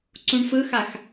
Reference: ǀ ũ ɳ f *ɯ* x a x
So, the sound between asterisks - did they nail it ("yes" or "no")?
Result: yes